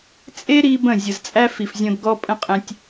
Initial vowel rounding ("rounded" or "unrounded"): unrounded